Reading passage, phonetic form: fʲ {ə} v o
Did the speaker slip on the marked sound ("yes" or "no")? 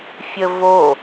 no